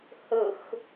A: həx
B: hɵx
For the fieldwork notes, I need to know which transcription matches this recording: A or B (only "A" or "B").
B